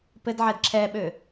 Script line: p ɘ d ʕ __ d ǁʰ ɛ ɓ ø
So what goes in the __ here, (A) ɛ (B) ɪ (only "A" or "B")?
A